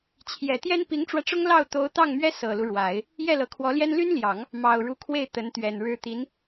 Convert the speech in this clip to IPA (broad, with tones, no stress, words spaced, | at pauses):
t͡ɕʰjɛ˨˩t̪jɛ˥n pi˧˥ŋʈ͡ʂwä˧ʈ͡ʂʊ˥ŋ lɑ˥˩ʊ̯ t̪o˧˥ʊ̯t̪ɑ˥˩ŋmɥɛ˥ sɤ˨˩lu˦ ɻwa˨˩˦ɪ̯ | jɛ˥˩lɤ˧˥kʰwɔ˧˥ljɛ˥n ly˥nljɑ˨˩˦ŋ | mɑ˨˩ʊ̯ɻu˧˥kʰwe˥˩ɪ̯ t̪ə˧˥nt̪ɥɛ˨˩nɻɻ̩˥ t̪i˧˥n